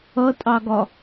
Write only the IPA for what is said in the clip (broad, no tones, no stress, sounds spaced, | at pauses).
ʌ tʼ ɑ ɡ ɒ